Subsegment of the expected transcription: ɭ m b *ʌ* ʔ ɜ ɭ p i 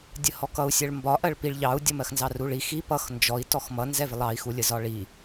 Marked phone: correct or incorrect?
incorrect